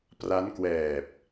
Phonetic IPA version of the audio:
p r a˦˥ n k w ɛː˨˩ p̚

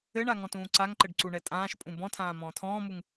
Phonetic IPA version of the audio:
ɘ ɳ a ŋ ɔ̃ t ũː ǀ a ŋ ǃ ɘ ɖ ǀ u ɳ ɛ tʼ ãː ʃ pʼ ũ b ɔ̃ tʰ ãː m ɔ̃ː tʰ ɔ̃ː m u ŋ

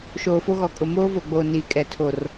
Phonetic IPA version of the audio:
ʃ oː˨ f o˦ ɣ ɔ˨ kʼ ʊ˨ m oː˦ v o˨ ɡ͡b oː˨ n iː˨ kʼ ɛ˨ tʰ o˨ r

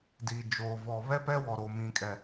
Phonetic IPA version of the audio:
d i˨ d͡ʒ oː˨ v ɔ˨ β ɛ˦ p ɛ˦ w ɔ˨ ɾ o˨ m ĩ˨ kʼ ɛ˨

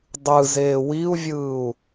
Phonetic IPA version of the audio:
dˤ ɯ z eː w i u̯ vʲ ɯː u̯

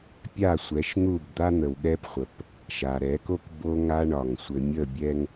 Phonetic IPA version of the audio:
pʲ a˦˨ sʷ ɛ˨˦ ʃ n̪ u˦˨ b d̪ a˦ n̪ ə˨ w ɠ ɛ˦ p χʷ ə˨ p | ʃ a˨ ɾ ɛ˨˦ k o˦ k b o˦ ŋ a˦ ɳ ɒ˨ ŋ sʷ ɘ˨ mʲ ə˦˨ bʲ ɛ˦ ŋ

